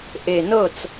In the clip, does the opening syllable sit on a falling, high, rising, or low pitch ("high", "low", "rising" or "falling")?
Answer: low